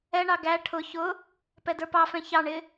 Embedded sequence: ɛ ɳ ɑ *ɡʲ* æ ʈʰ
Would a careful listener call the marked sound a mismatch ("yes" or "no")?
yes